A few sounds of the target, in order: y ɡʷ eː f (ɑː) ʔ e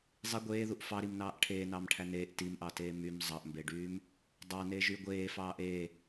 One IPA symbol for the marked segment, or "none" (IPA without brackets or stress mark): ɑː